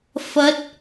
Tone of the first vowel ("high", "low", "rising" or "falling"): rising